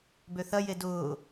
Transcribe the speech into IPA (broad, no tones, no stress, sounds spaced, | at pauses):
b ø θ ɐ j e d ʊː